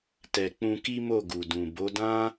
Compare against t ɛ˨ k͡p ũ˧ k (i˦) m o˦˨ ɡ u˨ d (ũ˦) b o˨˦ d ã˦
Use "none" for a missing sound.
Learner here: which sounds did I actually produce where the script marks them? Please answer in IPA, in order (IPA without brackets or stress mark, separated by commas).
i˦, ũ˨